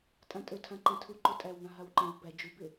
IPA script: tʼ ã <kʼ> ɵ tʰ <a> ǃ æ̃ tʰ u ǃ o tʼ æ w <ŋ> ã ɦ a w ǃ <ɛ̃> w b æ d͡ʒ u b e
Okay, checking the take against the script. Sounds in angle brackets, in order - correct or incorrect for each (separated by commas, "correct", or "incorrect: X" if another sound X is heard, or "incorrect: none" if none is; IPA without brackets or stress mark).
incorrect: tʼ, incorrect: ã, correct, incorrect: ẽ